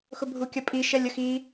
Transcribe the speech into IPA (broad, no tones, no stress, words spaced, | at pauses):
xʊbʱukʲɐpʼi ʃɛlʲəxi